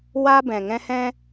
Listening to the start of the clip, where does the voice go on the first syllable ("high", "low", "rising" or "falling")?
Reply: high